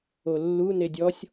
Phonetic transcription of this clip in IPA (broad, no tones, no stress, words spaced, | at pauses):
olːu nedʲɔsʲ